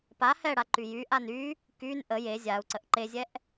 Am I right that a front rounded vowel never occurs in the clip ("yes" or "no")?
no